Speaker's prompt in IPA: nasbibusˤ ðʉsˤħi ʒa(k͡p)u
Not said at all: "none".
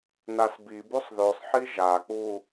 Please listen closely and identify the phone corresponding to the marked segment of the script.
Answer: k͡p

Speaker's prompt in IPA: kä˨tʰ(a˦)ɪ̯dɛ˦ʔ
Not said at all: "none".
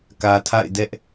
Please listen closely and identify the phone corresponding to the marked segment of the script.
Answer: a̰˦˨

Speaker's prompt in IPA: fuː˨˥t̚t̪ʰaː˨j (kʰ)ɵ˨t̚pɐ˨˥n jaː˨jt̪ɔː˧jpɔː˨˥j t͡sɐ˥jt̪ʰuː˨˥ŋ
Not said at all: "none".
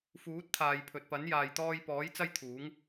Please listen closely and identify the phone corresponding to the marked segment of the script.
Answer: pʰ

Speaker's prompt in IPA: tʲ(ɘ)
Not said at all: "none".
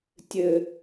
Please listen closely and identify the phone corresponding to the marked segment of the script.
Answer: ɘ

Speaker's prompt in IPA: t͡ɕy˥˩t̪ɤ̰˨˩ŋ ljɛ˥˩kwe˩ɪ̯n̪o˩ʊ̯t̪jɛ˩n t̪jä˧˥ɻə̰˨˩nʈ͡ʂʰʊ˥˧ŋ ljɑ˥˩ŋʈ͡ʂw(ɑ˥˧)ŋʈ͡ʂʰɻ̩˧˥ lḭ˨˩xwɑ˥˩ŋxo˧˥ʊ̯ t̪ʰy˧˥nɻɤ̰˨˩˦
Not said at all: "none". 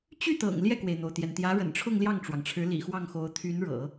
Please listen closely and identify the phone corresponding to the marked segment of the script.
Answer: ɑ˩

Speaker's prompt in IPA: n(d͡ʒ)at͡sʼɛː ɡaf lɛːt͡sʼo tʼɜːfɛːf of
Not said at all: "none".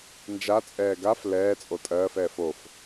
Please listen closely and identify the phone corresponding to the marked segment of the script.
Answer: d͡ʒ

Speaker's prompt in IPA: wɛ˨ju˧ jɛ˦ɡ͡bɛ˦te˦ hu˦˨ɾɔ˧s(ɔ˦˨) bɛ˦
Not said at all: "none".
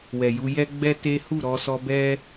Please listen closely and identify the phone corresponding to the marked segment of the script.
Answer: ɔ˧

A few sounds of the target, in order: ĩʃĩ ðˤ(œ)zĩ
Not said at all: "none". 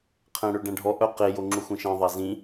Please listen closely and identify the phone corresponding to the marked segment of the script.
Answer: æ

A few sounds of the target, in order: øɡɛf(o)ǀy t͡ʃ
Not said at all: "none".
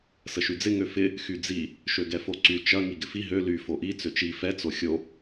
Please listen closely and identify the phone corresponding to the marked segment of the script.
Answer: o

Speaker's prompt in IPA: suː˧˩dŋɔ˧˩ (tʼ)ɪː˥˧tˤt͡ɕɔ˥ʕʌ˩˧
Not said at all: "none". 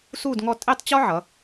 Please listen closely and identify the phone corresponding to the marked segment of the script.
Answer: tʼ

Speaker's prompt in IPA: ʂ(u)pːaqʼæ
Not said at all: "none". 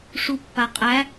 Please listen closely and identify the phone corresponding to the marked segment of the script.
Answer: u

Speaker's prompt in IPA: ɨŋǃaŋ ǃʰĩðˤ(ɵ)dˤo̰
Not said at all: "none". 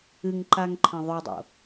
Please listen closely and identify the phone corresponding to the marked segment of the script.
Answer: ɵ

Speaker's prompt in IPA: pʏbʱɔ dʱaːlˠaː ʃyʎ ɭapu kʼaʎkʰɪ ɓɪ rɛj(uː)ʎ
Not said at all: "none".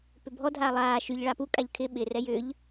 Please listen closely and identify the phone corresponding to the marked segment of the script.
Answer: ʏː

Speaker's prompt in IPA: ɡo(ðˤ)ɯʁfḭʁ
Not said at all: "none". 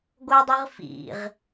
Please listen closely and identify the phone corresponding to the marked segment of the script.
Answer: dˤ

